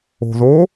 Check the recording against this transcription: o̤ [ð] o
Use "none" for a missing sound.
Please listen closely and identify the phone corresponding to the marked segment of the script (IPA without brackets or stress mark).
ð